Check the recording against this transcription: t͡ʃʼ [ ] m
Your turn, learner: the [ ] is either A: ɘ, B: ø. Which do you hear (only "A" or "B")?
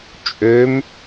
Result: B